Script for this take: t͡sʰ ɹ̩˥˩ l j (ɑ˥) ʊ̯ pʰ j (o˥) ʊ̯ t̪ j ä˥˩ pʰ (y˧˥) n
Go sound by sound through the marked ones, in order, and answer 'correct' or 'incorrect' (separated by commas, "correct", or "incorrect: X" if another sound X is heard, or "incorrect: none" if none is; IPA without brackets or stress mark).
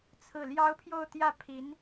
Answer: correct, incorrect: o˥˧, incorrect: i˧˥